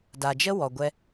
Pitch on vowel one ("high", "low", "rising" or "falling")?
low